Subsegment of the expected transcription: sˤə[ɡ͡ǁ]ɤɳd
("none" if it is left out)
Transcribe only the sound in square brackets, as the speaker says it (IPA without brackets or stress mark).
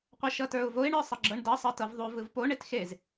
ɡ͡ǁ